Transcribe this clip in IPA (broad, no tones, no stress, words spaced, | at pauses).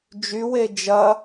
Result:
d͡ʒywe d͡ʒɐ